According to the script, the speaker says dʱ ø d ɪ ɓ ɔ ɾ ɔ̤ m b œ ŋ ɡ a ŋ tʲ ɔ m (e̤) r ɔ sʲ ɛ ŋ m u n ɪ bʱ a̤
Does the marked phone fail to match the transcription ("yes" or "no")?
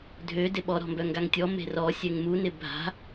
no